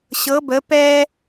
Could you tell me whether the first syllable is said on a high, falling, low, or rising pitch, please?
rising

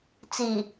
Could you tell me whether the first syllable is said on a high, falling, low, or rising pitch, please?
low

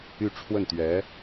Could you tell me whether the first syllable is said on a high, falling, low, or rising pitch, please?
falling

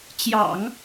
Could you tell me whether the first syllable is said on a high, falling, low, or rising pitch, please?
low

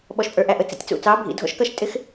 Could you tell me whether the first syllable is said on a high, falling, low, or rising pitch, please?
low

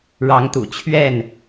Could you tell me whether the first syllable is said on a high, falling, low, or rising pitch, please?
rising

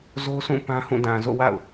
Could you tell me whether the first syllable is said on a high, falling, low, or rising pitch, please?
high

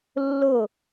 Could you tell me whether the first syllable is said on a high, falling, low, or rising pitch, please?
falling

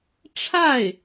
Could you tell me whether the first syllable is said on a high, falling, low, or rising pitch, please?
falling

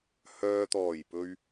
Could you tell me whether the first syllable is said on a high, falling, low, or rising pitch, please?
low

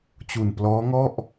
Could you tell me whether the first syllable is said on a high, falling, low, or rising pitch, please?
low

